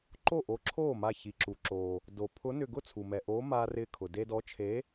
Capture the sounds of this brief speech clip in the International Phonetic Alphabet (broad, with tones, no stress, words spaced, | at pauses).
ǃo˥˩ʔo˨˥ǁʰoː˥˩ma˧˩ çi˩ǁu˩ǁoː˩ | do˩ pʰʊ˨˥nʏ˧˩ ɡʊ˥˩t͡sʰu˩mɛ˩ ʔoː˨˥maː˧rɪː˧kʰʊ˩ de˧dɔ˨˥t͡ʃʰe˨˥